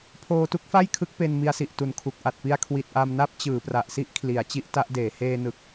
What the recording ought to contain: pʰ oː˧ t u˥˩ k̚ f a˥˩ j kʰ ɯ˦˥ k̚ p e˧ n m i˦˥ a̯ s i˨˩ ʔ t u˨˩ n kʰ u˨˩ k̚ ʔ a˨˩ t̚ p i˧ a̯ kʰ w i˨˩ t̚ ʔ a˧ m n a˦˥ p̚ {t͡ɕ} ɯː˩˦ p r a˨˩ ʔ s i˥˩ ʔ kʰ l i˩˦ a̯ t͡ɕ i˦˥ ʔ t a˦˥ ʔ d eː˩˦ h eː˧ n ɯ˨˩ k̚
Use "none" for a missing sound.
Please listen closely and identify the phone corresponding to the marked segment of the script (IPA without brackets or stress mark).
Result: t͡ɕ